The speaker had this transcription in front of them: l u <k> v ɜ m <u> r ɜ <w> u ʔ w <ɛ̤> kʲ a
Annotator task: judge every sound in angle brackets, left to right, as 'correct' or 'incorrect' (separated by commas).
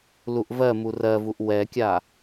incorrect, correct, incorrect, incorrect